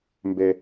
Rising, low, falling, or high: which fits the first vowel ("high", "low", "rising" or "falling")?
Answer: low